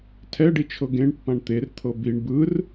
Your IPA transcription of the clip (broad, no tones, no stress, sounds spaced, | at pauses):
tʰ ɛ ɖ i t͡ʃʰ ɤ ɡ ẽ ɳ pː ã ɳ t̪ e r t̪ʰ ɤ b i ɳ b ɯ r